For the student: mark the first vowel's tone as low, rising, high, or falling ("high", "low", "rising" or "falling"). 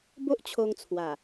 high